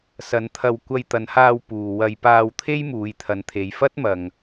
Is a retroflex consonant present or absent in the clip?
absent